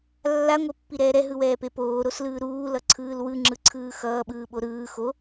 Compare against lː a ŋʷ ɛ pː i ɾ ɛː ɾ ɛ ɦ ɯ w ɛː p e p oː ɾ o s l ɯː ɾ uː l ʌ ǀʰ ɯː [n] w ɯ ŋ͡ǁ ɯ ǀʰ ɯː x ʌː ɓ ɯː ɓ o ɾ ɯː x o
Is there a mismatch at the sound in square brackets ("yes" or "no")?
yes